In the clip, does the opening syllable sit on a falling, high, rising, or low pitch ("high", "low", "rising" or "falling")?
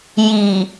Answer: low